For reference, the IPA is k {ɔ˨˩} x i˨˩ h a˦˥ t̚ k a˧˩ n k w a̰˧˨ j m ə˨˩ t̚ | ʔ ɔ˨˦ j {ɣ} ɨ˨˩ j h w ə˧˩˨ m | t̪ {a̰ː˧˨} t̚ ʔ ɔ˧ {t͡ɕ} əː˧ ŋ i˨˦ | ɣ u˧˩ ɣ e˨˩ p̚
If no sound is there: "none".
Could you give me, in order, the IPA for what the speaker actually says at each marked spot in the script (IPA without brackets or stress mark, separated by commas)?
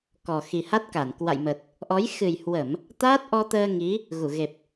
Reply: ɔ˨˩, x, aː˦˥, t̪